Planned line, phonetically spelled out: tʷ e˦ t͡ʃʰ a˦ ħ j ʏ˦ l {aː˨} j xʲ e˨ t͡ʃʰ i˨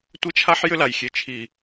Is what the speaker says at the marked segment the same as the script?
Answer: no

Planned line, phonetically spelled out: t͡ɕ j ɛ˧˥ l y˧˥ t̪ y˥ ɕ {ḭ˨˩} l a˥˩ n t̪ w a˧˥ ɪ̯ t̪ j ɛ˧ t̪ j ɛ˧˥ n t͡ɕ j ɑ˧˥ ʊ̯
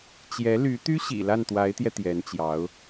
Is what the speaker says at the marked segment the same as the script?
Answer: yes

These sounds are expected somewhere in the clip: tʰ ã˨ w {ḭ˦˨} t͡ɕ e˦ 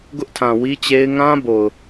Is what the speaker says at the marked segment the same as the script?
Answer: no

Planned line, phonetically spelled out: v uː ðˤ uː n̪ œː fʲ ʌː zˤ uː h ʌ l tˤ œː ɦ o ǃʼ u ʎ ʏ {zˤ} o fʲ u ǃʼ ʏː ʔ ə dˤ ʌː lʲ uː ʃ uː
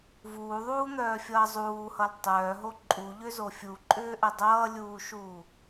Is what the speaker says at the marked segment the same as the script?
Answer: no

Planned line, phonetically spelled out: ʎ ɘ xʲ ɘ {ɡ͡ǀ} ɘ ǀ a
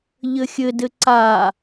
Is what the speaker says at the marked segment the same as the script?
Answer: no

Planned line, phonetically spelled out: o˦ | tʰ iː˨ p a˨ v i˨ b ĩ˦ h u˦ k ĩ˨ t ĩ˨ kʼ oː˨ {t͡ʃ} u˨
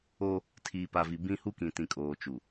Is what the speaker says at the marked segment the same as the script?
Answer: yes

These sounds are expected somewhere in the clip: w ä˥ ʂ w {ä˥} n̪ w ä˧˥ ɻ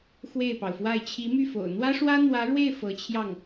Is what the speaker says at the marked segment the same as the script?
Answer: yes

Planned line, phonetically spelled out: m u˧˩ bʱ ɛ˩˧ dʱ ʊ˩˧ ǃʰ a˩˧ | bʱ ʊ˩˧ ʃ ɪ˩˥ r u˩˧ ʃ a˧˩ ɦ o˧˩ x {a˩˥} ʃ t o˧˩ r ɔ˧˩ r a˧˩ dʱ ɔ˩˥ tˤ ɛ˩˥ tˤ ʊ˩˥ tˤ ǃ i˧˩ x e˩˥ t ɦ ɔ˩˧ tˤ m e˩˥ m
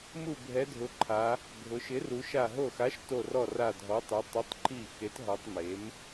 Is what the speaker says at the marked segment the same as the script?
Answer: yes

